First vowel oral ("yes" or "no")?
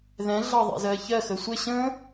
no